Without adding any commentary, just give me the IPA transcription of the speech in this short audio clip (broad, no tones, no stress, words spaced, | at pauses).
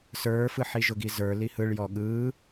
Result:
sə˞fɯ ħiʒʊɡizə˞ lihɯɭ jɔɠɯ